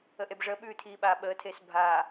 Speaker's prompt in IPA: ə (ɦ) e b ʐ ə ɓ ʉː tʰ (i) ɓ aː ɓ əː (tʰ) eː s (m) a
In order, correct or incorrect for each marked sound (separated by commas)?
incorrect, incorrect, correct, incorrect